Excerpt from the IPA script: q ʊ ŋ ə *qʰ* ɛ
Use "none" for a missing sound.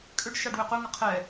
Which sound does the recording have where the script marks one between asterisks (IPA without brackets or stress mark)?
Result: qʰ